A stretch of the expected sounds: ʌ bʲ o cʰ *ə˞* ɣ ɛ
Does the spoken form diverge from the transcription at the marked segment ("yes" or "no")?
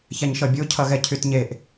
yes